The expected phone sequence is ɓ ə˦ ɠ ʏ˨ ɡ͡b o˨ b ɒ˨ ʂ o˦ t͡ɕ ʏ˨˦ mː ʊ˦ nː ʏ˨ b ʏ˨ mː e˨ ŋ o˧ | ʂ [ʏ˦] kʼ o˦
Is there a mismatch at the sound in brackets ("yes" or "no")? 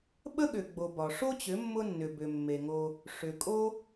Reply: yes